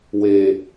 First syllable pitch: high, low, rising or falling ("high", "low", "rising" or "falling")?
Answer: low